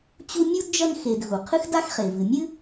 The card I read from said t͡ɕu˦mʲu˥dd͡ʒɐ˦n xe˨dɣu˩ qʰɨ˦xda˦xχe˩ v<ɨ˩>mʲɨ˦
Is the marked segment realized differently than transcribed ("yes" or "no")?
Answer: no